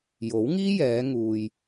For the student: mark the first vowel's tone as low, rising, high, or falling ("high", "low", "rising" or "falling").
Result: rising